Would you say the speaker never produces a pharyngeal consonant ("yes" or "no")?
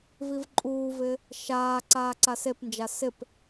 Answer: yes